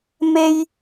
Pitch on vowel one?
high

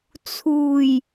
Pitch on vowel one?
low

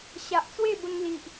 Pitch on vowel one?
low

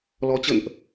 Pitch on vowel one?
rising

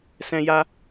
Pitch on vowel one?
high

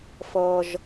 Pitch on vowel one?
low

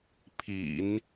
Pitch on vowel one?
low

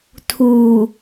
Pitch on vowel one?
low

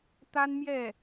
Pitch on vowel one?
high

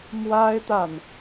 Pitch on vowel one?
high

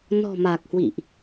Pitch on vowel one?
low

